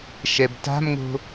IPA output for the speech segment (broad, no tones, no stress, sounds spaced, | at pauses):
ʃ ɛ b t a̤ m ŋ o̤